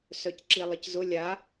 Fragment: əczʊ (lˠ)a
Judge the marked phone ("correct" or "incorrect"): incorrect